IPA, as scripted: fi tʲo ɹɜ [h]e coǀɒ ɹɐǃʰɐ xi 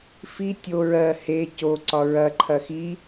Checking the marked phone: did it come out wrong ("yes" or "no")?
no